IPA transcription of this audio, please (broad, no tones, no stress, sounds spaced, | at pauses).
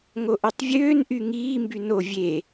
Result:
ŋ o ʔ ø tˤ vʲ øː n ʔ y ŋ iː m b y n o vʲ e